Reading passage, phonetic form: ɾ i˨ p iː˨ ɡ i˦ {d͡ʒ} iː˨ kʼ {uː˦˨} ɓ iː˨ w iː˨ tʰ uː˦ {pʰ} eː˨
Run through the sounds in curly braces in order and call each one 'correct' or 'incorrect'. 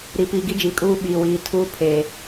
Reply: correct, incorrect, correct

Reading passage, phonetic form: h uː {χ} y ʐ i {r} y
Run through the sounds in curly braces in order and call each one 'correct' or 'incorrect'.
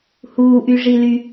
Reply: incorrect, incorrect

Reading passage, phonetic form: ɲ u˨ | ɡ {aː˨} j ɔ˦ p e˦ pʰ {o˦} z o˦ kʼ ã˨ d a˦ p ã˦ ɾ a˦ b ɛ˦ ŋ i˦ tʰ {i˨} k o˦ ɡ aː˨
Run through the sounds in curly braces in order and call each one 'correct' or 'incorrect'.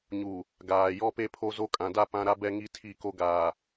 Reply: correct, correct, incorrect

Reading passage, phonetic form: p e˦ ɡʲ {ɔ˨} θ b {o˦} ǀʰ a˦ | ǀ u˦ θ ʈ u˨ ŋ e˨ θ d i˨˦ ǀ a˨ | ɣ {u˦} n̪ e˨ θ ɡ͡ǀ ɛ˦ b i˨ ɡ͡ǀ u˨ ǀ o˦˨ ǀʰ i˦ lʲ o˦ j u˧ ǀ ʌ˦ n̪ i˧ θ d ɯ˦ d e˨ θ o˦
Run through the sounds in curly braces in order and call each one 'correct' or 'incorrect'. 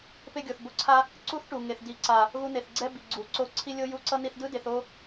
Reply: incorrect, correct, incorrect

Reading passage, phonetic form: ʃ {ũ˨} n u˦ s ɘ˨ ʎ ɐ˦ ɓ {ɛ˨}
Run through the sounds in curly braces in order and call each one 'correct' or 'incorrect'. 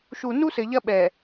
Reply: incorrect, correct

